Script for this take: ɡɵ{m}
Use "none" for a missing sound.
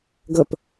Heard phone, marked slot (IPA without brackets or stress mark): p